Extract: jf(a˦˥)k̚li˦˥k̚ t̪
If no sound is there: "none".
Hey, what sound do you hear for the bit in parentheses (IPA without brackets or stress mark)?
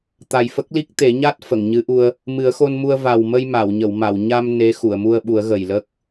ə˦˥